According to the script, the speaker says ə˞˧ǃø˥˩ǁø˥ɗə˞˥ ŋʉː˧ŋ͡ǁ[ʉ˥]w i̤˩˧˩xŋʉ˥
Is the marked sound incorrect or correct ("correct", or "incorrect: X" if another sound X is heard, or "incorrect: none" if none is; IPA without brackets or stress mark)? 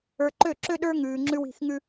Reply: correct